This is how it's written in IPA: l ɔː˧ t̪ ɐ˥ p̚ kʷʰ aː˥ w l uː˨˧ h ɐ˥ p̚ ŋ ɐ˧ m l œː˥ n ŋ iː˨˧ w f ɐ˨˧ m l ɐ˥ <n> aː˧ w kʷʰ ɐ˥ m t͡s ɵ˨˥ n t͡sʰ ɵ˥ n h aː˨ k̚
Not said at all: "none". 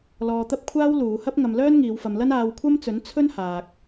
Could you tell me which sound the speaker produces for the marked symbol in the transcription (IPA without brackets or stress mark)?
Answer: n